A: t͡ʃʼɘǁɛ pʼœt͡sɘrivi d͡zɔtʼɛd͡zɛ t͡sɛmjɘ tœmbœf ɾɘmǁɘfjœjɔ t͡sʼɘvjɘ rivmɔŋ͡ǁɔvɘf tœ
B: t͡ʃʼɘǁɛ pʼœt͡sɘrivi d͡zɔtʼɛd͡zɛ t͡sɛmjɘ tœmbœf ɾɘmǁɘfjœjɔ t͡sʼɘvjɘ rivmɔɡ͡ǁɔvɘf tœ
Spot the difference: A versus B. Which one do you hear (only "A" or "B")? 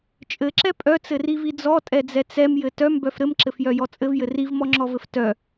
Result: A